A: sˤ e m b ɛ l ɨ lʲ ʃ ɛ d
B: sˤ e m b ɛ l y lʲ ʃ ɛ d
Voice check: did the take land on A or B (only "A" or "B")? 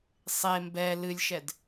A